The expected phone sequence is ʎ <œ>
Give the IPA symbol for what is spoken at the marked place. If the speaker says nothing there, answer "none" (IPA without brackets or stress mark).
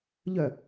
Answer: œ